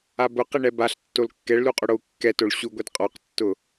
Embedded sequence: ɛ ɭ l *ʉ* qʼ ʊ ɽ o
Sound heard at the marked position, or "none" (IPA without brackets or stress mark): u